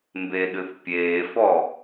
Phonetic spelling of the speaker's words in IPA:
mbeɗɨθpʲeːfɔ

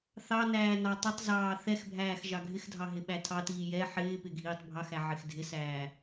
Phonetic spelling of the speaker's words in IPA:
θɑnæː nɑtˤɪtˤzɑː θɛxbʱæːx ʒɑɡʱɪxdʱɑ ɦɪɓætʰɑtiː jɛ ħɪːpɪ ɡʱiːtˤbʱɑxæ ʕɪxdʱɪsæː

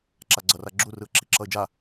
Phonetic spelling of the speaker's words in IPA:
ǁaɡ͡ǀʌraɡ͡ǁu rɯə̯ǁiǁʌɪ̯d͡ʒa

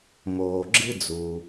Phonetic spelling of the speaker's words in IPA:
moː˩ɡ͡ǁɨ˥d͡zu˩

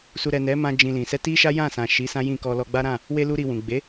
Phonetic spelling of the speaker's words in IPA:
su˨ɾɛ˨ nɛ˨˦mã˧ d͡ʒĩ˧lĩ˨ sɛ˧ti˦ʃa˦ jã˦˨sã˨ʃi˨˦ sã˦jĩ˦˨kɔ˧ lɔ˧ɡ͡ba˦ɾã˦˨ | we˧ lu˦ɾi˧wũ˨ ɡ͡be˨˦

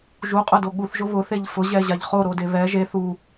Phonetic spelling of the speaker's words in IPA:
ʒuqʼʊdo ɠuθʒʊ βʊθeʎ fʊʑɛʑaʎ χoɾode βɛ ʒe θu

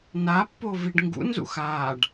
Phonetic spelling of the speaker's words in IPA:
napːo viɖŋɡṵnzṵx aːɖ

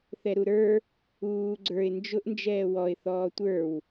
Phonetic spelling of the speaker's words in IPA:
θɛɾuɾə˞ | uː ɡ͡ǀə˞ɪ̯ nd͡ʒʊʔ nd͡ʒɛːwɔɪ̯ θɔːtʷə˞w

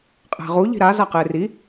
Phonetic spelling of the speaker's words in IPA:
qʼæ̤ʁu ʎi̤ɾa zaqeːri

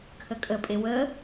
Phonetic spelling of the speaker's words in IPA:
kʰəkʼəpʼe wə

